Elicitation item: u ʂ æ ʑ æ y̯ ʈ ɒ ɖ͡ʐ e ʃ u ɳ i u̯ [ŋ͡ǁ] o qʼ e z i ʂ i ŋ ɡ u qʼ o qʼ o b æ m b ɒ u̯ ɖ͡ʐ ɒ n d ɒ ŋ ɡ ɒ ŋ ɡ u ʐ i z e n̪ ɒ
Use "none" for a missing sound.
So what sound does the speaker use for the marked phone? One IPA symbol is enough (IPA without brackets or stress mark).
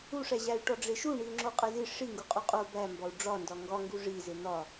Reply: ŋ͡ǁ